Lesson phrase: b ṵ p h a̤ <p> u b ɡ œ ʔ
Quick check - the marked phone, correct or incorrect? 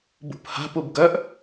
correct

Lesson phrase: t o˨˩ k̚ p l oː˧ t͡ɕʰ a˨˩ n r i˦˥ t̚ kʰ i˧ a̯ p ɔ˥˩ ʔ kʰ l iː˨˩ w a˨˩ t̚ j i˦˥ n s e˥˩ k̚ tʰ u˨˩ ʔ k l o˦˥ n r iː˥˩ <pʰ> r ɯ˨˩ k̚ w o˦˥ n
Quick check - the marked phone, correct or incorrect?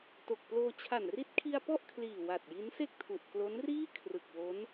incorrect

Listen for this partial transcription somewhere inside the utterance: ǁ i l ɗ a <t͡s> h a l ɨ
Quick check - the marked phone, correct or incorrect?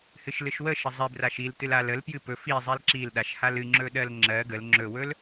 incorrect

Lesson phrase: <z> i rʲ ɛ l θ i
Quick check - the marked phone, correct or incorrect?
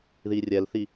incorrect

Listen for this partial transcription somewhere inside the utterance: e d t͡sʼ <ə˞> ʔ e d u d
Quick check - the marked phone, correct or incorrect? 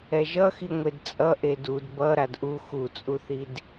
incorrect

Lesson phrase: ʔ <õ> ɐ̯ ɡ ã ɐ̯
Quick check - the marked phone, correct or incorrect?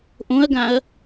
correct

